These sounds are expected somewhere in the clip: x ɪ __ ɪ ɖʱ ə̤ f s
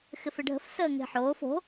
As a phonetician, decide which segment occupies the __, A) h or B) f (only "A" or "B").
B